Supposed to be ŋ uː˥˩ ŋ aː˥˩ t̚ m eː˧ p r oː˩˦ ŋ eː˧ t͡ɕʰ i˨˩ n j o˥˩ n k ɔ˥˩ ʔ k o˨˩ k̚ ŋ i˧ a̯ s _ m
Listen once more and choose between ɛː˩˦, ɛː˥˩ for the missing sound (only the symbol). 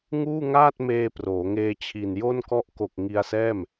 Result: ɛː˥˩